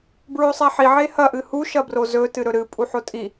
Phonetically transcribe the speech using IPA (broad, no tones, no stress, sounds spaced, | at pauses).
b ɹ o sˤ a ħ i ʕ e h ɐ ʔ ɨ h u ʃ ɐ b r o z ɵ t ɨ ɾ ɵ ɾ ɨ pʼ u ħ o tʼ i